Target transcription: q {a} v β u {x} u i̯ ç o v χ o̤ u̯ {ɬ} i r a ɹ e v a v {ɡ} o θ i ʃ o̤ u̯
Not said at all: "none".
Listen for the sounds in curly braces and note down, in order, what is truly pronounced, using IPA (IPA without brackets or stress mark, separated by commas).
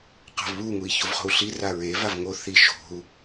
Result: a̤, ŋ, ɬ, ŋ